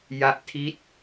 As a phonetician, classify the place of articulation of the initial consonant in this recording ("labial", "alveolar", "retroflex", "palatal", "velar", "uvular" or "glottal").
palatal